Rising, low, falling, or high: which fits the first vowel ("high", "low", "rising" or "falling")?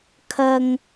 low